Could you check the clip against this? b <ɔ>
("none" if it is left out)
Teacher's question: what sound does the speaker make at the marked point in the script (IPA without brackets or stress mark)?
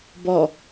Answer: ɔ